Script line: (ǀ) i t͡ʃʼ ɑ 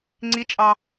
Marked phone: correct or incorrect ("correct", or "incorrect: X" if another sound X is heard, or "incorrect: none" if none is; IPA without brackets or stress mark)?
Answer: incorrect: ŋ͡ǀ